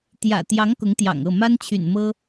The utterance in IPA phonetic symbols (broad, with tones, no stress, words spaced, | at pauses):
t̪jä̰˨˩ t̪jɑ˧˥ŋ kʊ˧˥ŋt̪jɑ̰˨˩ŋɤ˥˩ ma˥nt͡ɕʰy̰˨˩nmɤ˥